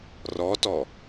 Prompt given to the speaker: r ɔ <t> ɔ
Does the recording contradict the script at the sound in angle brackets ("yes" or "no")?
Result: no